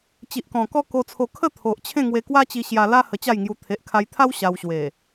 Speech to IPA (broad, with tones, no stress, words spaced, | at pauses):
t͡ɕi˨ʔkɔ̃˨˩ kɔ˦ko˧t͡sʰo˧ kʰə˥˧t̪ʰo˨ʔ t͡ɕʰẽ˥˧ŋwe˧kwa˦t͡ɕi˧ ɕja˧la˦ hə˧t͡ɕa˥˧jŋju˧ t̪ʰe˨ʔkʰa˧jt̪ʰa˦w ɕa˧wɕwe˨˩